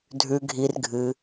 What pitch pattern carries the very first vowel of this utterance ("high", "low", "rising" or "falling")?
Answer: low